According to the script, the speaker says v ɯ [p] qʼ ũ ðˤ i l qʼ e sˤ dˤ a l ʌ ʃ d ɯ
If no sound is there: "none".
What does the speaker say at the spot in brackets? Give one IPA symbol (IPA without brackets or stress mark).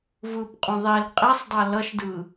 p